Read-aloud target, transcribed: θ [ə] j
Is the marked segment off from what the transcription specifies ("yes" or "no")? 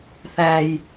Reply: yes